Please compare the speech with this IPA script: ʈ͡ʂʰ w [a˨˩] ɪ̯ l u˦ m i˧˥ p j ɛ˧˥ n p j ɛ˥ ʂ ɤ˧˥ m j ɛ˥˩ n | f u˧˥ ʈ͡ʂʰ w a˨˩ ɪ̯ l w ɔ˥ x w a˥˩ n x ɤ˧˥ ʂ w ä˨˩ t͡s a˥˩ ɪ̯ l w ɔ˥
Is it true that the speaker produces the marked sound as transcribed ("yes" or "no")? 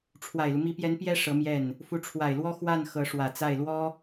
yes